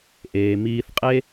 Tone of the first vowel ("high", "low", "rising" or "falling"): low